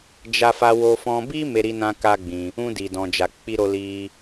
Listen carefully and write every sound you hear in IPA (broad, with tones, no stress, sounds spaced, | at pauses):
d͡ʒ a˧ f a˧ w o˧ f ɔ̃˧ b i˦ m e˧ ɾ i˧ n ã˧ k a˦ ɡ͡b ĩ˧ | ũ˧ d i˨ d ɔ̃˨ d͡ʒ a˨ k͡p i˧ ɾ o˧ l i˧